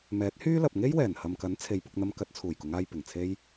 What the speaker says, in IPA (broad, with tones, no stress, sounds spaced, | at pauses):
m ɛː˨˥ t̚ h yː˥ l ɐ˨ p̚ ŋ e˥ j w ɛː˨˩ n h ɐ˨ m k ɐ˨˥ n t͡sʰ e˨˧ j p ʊ˧ k̚ n̪ ɐ˧ m k ɐ˧ t̚ t͡sʰ uː˨˩ j k ʊ˨˧ ŋ aː˧ j p ɪ˨˩ ŋ t͡sʰ e˥ j